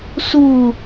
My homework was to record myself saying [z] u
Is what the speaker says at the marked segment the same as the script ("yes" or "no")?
no